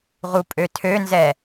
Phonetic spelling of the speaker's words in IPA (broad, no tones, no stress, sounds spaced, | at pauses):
ʁ u pʼ ø tʰ ø n z ɛ